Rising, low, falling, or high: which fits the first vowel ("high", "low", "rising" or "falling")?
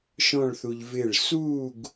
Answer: falling